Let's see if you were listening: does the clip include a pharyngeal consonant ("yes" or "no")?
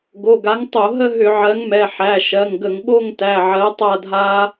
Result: yes